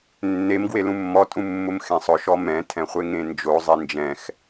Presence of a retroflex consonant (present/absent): absent